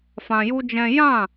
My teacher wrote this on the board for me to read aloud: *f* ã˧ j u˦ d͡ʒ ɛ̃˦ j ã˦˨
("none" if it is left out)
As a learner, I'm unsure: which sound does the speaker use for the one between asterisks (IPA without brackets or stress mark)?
f